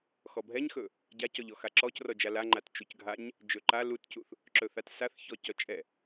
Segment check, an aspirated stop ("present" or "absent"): absent